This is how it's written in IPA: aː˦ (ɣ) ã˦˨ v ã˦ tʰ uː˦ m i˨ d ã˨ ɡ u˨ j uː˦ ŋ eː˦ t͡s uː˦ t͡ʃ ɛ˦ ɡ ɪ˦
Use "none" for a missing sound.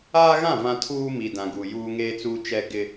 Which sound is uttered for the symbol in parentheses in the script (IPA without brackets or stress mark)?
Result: ɣ